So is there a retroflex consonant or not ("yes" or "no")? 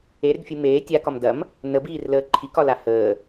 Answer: no